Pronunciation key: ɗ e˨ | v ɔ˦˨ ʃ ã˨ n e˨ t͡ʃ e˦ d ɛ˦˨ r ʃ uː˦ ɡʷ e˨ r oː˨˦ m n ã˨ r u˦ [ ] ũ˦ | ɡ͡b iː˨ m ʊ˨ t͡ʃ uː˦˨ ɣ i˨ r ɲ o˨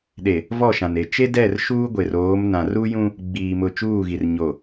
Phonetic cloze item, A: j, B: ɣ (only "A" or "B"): A